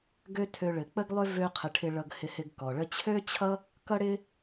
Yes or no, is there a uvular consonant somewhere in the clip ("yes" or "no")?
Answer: yes